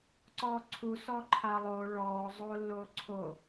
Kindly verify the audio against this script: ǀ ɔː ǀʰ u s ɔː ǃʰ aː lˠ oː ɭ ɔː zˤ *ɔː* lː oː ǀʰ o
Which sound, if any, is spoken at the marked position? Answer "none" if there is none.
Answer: oː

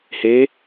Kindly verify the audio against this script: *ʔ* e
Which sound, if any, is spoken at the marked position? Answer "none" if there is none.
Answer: h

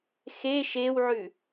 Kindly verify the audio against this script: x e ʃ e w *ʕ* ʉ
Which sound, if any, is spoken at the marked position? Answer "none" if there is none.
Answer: ʕ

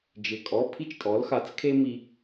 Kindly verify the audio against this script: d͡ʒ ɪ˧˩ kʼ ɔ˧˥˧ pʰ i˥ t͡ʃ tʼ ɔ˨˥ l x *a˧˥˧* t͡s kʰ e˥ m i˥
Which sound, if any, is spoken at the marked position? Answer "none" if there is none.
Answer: a˨˥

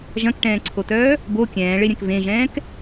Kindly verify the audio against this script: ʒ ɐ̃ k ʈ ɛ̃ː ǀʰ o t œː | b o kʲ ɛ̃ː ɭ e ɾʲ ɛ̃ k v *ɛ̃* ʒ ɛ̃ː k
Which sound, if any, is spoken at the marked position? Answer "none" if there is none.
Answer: ẽ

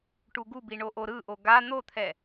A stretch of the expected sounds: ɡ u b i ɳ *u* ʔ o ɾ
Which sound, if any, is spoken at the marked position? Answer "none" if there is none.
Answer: o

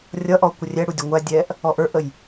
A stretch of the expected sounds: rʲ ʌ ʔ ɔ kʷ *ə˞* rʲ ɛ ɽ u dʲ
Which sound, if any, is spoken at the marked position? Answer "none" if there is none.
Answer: ə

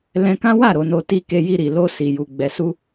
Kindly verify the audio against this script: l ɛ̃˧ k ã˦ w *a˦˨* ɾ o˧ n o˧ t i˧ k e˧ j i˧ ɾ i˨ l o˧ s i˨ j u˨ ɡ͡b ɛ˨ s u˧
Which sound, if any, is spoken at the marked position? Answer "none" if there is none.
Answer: a˦˨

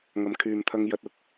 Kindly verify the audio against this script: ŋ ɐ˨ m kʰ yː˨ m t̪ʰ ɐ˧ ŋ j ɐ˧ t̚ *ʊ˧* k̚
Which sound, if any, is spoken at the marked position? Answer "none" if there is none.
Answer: ʊ˧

